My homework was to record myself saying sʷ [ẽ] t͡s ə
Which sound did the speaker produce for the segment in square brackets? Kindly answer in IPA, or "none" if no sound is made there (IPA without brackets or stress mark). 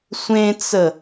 ẽ